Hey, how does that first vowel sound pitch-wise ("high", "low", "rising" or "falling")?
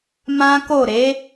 high